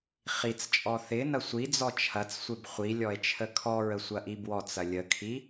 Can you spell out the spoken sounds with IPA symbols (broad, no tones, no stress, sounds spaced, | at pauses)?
χ i t͡s t͡ʃʼ ɔ θ ɪ n ɐ sʷ i d͡z ɔ t͡ʃʰ ɐ t͡s sʷ ɪ b χʷ i lʲ ɔ e̯ t͡ʃʰ ə kʰ ɔ ɹ ə sʷ ɐ ʔ i b w ɔ t͡s ɐ lʲ ə kʰ i